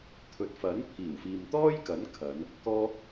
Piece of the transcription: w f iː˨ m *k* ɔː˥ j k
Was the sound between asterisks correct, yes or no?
no